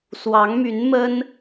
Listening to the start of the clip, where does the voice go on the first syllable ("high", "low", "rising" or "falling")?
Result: rising